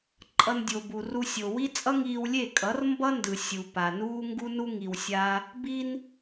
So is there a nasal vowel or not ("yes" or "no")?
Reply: no